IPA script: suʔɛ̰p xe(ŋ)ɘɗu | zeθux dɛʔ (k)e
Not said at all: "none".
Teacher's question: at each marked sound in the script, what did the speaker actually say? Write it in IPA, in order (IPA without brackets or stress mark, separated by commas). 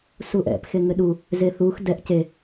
ŋ, c